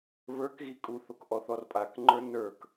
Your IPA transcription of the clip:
β ə˞ k ɣ i kʼ u θ o k ʔ ɔ θ ɔ r pʼ a k ŋ͡ǃ ə˞ n ə˞ k

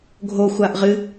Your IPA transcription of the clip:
ɡʱ o xʷ a ʔ ʁ ɨ

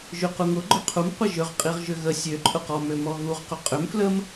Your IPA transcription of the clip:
ʒ y q u ŋ ʊ ɡ͡ǃ ʊ qʰ u m qʷ ə ʒ ʏ ʁ qʼ i ʁ ʒ ʏ ɣ ə sʲ ø ǃʼ ʊ q ɔ m ø m ɔ ɣ u ʁ q ʏ qʼ ʏ m f l ə m

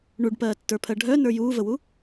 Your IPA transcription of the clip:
ɳ u ɖ p ɜː tː ə˞ pʰ ɜ ɖʱ œ n ə˞ j uː v ə w u

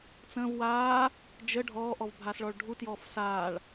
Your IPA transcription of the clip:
t͡s ə̃ v w aː | d͡ʒ ə ɖʱ ɔː ʔ ɔ v bʱ a s ɭ ɔ ɭ ɖʱ u t j ɔː f s aː ɭ

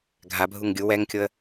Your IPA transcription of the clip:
ɡʱ a bʱ u ŋ ɡʲ u w ɛ ŋ kʲ o ə̯

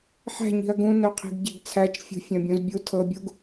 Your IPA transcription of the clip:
ħ æ̤ ɲ i̤ ɐ̯ ɡ ũ n œ qʰ i̤ ɡ ɟ e ɡ t͡sʰ æ t͡ʃ fʲ ṳ fʲ œ̃ bʲ ũ z bʲ u tʰ ɤ bʲ u ɡ

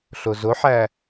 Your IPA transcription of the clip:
ɬ o z o ħ æ

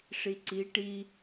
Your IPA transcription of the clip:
ʂ i ǀ i ʈ i

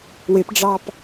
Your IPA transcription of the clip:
w ɪ p ɖ͡ʐ ɑ p

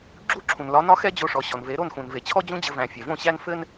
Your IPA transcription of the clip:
ɡ͡ǁ u˦˨ ǁʰ ũ˨ n l ɒ˨˦ n ɒ˦ x ɛ˦ d͡ʑ o˧ ʂ ɔ˨ ɕ ɔ˨ n v e˨˦ ɾ o˦˨ n x ũ˨ n v e˨ t͡ɕʰ ɔ˦ d͡ʑ ũ˦ d͡ʑ ɘ˧ v æ̃˨ fʲ ɛ˨ v õ˦˨ ɕ æ˦ n f ɘ˦ n

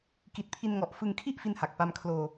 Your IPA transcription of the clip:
k i˨˩ t̚ pʰ i˧ n ŋ ɔ˨˩ ʔ f ɯ˧ ŋ kʰ i˥˩ ʔ f i˥˩ n h a˨˩ k̚ p a˧ m kʰ l oː˧

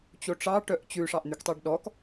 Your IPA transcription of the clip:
t͡ɕ o ʈ͡ʂ ɑ ʈ œ ʔ t͡ɕ ʉ ʂ ɑ ʔ n̪ y k tˤ e ɖ ɗ ɔ k

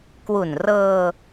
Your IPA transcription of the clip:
k w u˨˩ n r ɤː˧

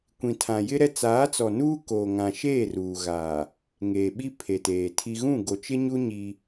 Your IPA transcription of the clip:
kʷ ĩ˨ tʰ ã˨ j ɪ˦ ɾ ɛ˦ t͡s aː˨˦ t͡s ɔ˨ n uː˦ k oː˨ ŋ ã˨ ʃ eː˦˨ r uː˨ ɣ aː˨ | ŋ eː˨ ɓ i˦ pʰ e˨ t eː˨ tʰ i˦ ɣ ũ˦˨ ɡ o˨ t͡ʃ ɪ˦ ɲ u˦ ɲ i˦

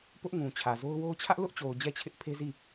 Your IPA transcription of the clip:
p ʊ˦ ʔ ŋ ũ˨ t͡ɕʰ ä˨ z o˦ ʊ̯ w o˦ ʊ̯ t͡ɕʰ ä˦ ʔ l ʊ˦ ʔ t͡ɕ o˨ ʊ̯ d͡ʑ ɛ˦˨ t͡ɕʰ ɪ˦ ʔ pʰ e˦ z i˦˨

